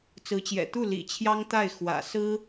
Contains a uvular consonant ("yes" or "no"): no